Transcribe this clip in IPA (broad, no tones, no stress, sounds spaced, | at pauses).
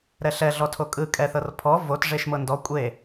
ɾ ɛ ɬ ɛ ɮ ɔ tʰ o kʼ ɯ kʼ ɛ θ ɤ r pʰ ɔ v o t ʐ e ʃ m ɤ n d ɔ kʷʼ e